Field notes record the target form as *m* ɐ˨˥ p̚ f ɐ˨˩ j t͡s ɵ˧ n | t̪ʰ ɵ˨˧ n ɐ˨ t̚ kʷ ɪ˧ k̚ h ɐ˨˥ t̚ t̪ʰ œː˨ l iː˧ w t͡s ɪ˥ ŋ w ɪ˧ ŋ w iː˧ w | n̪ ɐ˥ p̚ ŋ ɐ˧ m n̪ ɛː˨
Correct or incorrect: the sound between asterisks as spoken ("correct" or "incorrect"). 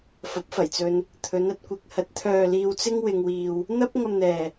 incorrect